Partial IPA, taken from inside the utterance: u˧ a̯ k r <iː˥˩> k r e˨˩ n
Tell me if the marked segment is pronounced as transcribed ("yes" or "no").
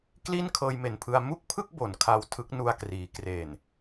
no